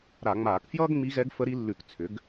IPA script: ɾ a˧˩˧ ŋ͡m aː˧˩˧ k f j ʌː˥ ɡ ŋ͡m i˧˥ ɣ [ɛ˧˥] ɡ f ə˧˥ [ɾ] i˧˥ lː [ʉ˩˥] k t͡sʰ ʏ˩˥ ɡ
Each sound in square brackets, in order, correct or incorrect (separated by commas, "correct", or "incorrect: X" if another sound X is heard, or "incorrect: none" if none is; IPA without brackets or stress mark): correct, correct, incorrect: ʉ˧˩˧